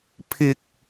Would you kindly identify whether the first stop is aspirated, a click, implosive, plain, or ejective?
aspirated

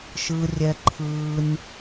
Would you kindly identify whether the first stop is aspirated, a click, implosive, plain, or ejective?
click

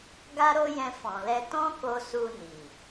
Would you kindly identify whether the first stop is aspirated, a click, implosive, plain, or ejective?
plain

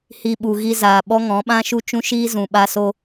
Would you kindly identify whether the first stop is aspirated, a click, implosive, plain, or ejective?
implosive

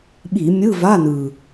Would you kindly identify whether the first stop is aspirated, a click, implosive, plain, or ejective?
implosive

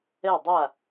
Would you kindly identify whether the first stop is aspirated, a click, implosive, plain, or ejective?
plain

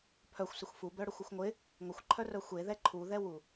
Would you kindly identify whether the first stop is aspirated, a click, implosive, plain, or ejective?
aspirated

